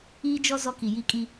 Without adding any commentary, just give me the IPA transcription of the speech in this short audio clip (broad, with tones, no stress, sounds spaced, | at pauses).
iː˦ d͡ʒ ɔ˦ z ɔ˦ k i˨ j i˦ kʼ i˦